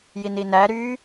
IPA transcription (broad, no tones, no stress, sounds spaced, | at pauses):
j i n i n æ ɾ y